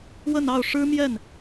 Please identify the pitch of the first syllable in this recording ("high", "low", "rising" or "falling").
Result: falling